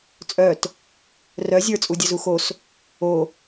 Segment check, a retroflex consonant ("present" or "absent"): absent